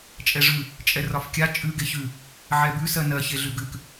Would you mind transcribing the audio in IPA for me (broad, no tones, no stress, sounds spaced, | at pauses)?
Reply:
t͡ʃʼ ɛ ʐ ʉ | t͡ʃʼ ɛ r ɒ f kʲ a t͡ʃʼ ʉ ɡ e ç ʉ | ʕ ɛ b ʉ s ɜ n ɜ ç e ɮ ʉ ɡ ʉ k